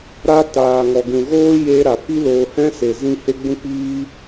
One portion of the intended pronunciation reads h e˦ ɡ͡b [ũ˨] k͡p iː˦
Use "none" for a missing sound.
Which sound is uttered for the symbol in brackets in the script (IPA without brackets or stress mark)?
ũ˦